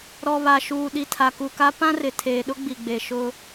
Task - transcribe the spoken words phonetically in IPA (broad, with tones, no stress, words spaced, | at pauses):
ɾɔ˨βa˨ʃuː˨ ɗi˨tʰa˨ku˨ka˦ pã˦rɪ˨ tʰeː˨ɗʊ˦ɡ͡bi˨ɡ͡be˨ ʃʊ˦